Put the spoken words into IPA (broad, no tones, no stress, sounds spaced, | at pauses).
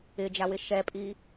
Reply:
ɪ d͡ʒ a w ɪ ʃ ɛ pʼ i